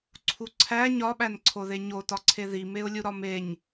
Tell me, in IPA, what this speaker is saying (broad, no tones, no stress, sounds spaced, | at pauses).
ǀʰ u ǀʰ æ ɲ ɒ ɓ æ n ǀʰ o ð e ɲ o t ɒ ǀʰ e ð i m e ʊ̯ lʲ u ɾ ɒ m e ɲ